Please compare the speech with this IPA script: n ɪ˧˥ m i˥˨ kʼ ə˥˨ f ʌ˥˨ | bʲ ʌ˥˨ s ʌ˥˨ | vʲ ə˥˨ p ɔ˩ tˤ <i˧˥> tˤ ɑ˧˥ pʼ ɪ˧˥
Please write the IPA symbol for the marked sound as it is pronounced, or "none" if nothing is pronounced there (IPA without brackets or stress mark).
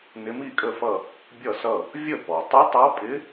i˧˥